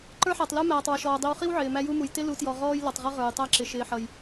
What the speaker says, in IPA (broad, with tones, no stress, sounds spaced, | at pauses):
ǃ ə˞˦ ħ æ˨ tˤ l u˦ m æː˨ tˤ w ʊ˨ ʃ ɔː˨ dˤ i˨ w χ i˦ w ʕ ɪː˨ m æ˦ j u˦ m u˨ j t ɪ˦ l u˨˦ t j ɔ˨ ʁ ɔː˦ j l ʌ˨ tˤ ʁ ʌ˦ ʁ ə˞˨ j tˤ æ˦ ǁ ɪ˨ ʃ ɪː˨ ħ ʌ˨ j